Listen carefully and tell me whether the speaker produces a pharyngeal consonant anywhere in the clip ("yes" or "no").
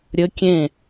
no